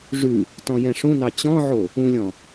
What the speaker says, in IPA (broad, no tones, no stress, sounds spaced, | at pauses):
ʐ ʉ | t ɔ̃ j ɛ̃ ʂ ũ n ɑ t͡ɕ ɔ̃ ʕ o | ũ lʲ ɔ̃